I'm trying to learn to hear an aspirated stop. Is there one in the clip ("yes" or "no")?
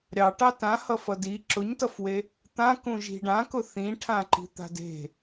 yes